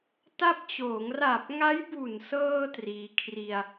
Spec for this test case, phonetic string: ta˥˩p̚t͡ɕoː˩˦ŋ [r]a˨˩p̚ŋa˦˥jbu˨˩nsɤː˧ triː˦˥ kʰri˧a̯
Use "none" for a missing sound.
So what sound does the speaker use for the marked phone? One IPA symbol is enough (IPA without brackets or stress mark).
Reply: r